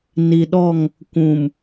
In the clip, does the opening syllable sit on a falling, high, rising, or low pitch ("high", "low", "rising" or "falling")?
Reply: low